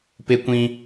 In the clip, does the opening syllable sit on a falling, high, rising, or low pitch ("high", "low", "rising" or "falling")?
high